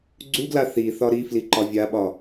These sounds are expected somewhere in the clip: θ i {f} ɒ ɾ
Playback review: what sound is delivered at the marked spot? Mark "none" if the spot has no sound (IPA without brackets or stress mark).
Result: θ